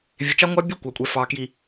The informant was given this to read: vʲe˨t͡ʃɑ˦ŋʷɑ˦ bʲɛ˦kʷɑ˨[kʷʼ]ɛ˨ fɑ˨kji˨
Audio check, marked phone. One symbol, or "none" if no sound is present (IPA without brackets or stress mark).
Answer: kʷʼ